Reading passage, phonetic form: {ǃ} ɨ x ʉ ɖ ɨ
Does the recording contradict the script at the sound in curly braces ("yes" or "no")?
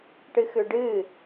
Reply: yes